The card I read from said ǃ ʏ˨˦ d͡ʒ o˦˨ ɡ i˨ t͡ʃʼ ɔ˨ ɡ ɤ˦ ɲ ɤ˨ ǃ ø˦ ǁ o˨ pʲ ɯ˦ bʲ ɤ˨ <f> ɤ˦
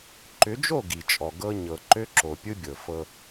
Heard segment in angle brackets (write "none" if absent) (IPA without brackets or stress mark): f